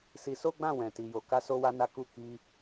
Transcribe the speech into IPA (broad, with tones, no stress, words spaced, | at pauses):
si˧so˦ɡ͡bã˦˨ wɛ̃˨ti˨ jo˨ka˧ so˦wa˦na˦ku˦˨ ki˧